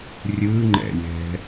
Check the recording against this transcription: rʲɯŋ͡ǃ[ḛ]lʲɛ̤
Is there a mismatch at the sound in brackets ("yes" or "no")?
yes